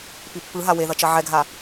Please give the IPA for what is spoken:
pipːɯɦa weðʌt͡ʃʌ ʕɛɡʱa

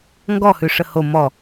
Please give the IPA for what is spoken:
ŋɡɔhʉ ʂəho mɔ

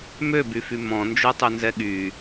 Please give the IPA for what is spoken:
møbyfy mɔ̃nd͡ʒotˤønzɛ ɠy

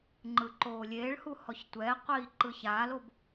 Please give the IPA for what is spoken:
ŋ͡ǃɯǃoːlʲeːɭhu hɔçtʷɛːqʷiː ǃɯçaːlob

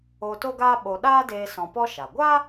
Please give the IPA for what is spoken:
o˧ to˦ɡaː˦ ɓo˧ ɗaː˦deː˧ sɔ̃˧pɔ˦ʃa˨ ɡʷa˦

